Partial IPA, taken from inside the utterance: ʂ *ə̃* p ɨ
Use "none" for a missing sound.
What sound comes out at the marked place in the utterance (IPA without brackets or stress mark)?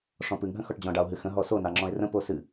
ɔ̃